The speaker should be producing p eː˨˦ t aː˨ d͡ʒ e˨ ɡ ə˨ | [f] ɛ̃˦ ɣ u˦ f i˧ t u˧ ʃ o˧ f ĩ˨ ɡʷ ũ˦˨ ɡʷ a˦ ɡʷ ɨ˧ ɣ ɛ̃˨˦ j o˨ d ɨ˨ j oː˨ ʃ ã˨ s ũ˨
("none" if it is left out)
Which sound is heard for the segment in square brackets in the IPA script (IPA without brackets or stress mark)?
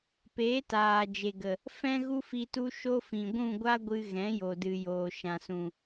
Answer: f